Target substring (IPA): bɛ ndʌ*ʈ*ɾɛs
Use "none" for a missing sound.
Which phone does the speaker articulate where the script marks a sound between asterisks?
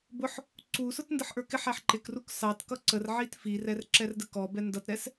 t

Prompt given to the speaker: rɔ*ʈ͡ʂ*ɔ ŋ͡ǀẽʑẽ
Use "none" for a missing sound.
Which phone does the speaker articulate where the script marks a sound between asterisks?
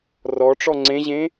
ʈ͡ʂ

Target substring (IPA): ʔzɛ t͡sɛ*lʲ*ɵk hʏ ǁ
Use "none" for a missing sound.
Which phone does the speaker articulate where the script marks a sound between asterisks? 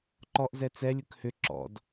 lʲ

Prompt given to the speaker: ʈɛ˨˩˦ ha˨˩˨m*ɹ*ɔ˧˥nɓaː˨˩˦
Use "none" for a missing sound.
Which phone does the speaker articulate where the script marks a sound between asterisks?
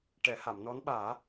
n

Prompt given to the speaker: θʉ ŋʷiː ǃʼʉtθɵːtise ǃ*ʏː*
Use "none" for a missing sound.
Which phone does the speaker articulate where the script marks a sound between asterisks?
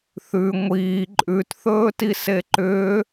ʏː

